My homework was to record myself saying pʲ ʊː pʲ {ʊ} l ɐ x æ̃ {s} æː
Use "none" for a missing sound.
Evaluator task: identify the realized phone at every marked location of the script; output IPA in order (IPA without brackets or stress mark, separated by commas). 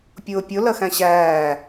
ʊ, ɕ